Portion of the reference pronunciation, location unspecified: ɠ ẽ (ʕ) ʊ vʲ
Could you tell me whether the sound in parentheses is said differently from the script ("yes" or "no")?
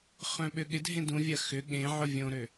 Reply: no